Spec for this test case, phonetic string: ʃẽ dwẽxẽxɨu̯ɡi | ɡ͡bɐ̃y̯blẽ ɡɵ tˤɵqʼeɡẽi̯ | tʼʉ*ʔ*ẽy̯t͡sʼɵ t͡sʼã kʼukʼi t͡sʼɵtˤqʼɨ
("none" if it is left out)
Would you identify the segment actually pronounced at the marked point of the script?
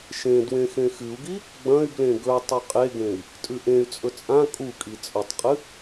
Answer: ʔ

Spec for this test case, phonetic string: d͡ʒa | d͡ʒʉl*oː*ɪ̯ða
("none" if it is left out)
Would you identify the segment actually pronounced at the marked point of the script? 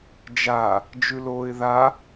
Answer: oː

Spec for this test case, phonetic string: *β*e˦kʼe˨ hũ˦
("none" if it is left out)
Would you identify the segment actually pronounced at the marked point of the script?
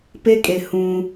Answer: p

